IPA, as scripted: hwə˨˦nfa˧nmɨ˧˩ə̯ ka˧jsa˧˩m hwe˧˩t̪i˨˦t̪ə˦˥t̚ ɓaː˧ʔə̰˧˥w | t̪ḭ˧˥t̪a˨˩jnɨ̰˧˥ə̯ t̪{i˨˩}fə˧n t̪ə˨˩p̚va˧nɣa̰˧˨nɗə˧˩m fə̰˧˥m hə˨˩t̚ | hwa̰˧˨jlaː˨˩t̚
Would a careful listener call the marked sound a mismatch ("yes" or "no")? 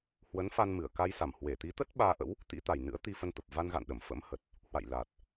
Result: yes